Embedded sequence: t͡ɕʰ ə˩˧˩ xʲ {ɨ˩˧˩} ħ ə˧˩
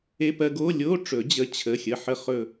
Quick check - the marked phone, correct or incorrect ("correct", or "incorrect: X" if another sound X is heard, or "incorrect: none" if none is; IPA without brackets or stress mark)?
incorrect: ə˩˧˩